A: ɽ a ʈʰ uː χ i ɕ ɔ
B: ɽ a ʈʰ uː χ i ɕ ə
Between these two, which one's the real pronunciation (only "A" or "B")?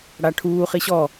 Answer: A